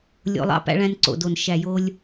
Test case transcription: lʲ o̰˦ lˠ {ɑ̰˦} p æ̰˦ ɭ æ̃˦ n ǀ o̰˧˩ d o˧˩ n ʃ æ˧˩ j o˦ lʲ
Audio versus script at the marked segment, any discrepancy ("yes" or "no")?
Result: no